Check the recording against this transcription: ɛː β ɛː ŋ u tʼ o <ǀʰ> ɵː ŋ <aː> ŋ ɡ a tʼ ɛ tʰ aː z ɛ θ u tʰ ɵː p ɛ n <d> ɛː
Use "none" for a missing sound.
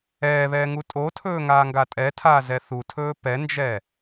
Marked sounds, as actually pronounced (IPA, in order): tʰ, aː, d͡ʒ

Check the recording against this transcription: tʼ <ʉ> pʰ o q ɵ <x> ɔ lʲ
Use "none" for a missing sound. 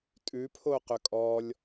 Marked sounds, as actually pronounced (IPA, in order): ʉ, kʼ

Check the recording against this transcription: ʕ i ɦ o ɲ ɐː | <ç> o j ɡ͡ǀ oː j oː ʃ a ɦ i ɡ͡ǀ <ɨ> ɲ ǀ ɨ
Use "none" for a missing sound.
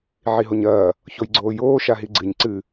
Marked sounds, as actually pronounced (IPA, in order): ç, ɨ

